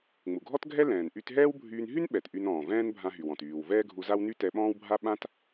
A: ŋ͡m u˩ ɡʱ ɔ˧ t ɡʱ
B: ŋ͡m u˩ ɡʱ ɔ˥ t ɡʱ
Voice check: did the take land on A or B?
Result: B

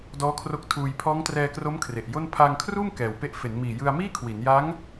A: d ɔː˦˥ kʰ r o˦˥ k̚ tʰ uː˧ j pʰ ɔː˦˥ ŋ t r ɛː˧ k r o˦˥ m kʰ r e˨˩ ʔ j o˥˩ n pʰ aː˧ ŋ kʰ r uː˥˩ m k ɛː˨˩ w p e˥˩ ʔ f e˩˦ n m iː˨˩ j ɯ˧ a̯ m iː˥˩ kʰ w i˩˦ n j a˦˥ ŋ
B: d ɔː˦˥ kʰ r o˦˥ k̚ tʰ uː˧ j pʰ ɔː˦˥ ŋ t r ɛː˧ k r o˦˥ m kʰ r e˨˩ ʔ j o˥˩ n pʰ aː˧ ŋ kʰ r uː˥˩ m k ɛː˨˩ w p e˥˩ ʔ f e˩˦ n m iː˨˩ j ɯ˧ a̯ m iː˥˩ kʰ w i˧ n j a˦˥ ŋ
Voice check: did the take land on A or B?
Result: A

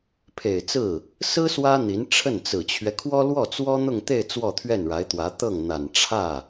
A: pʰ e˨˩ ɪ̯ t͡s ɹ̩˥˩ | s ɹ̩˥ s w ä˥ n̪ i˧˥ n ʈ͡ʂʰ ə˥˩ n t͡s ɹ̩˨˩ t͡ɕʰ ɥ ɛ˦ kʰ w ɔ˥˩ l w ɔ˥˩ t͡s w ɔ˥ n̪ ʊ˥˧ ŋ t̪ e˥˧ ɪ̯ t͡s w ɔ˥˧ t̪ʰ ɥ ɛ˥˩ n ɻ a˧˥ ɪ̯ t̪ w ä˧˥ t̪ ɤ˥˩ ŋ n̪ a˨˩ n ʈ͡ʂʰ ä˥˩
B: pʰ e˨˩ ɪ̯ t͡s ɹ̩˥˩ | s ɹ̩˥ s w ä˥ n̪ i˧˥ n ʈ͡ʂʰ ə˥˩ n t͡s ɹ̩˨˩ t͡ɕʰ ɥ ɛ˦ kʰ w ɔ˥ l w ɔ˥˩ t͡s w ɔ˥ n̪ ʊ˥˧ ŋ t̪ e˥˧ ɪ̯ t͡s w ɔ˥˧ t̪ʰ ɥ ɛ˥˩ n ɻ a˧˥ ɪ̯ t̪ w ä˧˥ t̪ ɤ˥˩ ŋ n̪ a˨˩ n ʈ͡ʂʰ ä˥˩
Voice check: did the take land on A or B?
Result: B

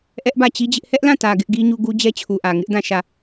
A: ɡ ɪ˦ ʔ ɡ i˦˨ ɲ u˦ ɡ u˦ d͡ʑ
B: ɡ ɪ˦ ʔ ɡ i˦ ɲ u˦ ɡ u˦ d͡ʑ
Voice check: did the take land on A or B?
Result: B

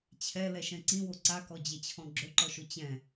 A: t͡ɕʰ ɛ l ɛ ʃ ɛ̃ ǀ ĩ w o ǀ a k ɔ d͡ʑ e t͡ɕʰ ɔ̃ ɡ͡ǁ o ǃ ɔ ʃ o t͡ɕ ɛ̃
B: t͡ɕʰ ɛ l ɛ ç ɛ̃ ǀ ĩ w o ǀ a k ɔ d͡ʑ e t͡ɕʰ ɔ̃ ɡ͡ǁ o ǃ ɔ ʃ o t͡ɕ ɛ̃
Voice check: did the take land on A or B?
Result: A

